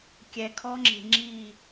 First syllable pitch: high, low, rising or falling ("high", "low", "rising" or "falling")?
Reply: low